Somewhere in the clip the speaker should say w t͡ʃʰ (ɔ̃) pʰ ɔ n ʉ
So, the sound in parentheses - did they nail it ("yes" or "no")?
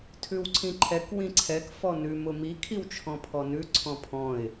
yes